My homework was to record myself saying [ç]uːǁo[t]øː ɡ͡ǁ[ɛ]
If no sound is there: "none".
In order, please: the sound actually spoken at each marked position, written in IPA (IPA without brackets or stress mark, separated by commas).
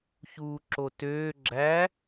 ç, t, æ